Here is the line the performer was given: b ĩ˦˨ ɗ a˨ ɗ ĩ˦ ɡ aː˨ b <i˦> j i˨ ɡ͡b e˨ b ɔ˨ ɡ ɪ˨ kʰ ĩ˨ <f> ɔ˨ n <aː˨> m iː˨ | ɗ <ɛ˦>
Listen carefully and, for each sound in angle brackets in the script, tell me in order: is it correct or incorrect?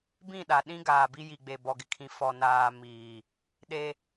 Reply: correct, correct, correct, incorrect

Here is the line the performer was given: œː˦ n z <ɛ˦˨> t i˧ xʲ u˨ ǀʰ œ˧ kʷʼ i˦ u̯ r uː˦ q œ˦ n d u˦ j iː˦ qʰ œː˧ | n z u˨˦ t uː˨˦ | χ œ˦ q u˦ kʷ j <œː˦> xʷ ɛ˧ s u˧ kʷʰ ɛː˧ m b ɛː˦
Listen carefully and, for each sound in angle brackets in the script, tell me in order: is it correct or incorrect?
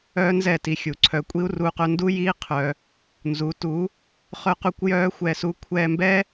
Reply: correct, correct

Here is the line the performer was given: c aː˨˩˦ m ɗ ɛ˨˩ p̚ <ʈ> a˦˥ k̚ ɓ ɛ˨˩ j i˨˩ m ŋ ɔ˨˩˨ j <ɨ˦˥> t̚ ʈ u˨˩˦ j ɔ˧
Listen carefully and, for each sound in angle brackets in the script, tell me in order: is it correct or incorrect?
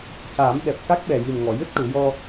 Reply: incorrect, correct

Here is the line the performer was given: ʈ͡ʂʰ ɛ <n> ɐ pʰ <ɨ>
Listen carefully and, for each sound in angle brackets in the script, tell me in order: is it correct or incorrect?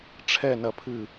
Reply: correct, correct

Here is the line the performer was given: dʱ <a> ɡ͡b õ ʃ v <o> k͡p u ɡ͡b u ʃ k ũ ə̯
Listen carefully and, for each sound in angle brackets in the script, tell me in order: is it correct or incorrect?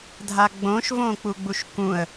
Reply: correct, incorrect

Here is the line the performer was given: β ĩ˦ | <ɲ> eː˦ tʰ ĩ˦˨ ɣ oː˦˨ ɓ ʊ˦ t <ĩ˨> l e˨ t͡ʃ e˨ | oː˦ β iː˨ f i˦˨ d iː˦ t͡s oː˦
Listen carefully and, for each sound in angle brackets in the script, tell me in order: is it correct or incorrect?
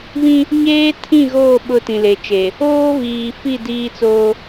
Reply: correct, correct

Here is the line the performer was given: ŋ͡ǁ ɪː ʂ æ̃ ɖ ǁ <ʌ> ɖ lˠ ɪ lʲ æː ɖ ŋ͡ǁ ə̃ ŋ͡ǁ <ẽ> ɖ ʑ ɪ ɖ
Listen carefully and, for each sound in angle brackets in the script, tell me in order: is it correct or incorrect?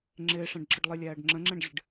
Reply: incorrect, incorrect

